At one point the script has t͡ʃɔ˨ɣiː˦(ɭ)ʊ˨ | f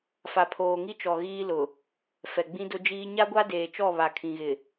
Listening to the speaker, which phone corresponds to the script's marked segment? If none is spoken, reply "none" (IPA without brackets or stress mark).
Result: l